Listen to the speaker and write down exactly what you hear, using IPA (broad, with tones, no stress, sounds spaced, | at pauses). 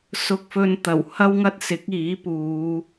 s ʊ˧ k̚ f ɵ˧ n t̪ ɐ˨˩ w h ɐ˥ w ŋ ɐ˥ t̚ s ɪ˨˥ k̚ iː˨˥ p uː˨˧